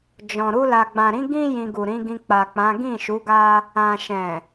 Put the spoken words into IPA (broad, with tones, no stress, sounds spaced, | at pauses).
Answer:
d͡ʒ ɔ̃˨ ɾ u˧ l a˨ ɡ͡b ã˨ ɾ ĩ˨˦ ɡ ĩ˦ j ĩ˧ ɡ u˨ ɾ ĩ˨˦ ɡ ĩ˧ k͡p a˨ k͡p ã˨˦ ɡ ĩ˦˨ ʃ u˨˦ ɡ a˦ | ã˨ ʃ ɛ̃˨